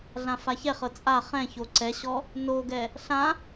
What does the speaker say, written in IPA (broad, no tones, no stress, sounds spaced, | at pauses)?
ɮ ã f a ç ɛ χ ɤ t͡sʼ a χ ɛ̃ ç o ǀ ɛ ɕ ɔ | n o ɡ ɛ | ɬ ã